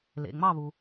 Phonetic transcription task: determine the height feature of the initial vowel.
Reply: mid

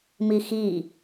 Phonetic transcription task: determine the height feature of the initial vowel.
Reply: high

